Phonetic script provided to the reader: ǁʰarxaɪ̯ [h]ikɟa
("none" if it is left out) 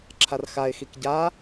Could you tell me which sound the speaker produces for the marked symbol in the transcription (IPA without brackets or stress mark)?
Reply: x